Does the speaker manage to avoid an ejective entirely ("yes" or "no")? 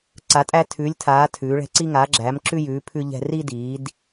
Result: no